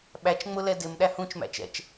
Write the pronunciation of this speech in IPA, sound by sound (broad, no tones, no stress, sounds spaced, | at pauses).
ɓ æ t͡ʃ ŋ͡m ʊ l ɛ d ɪ m ɗ æ h ũ t͡ʃ m æ̰ t͡ʃ ɛ̰ t͡ʃ